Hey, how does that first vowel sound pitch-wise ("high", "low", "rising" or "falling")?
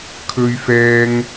high